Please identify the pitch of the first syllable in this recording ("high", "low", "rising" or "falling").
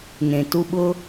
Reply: low